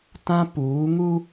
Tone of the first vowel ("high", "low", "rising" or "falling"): high